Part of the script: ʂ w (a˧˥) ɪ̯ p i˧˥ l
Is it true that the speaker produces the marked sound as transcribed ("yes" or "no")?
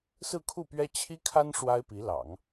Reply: no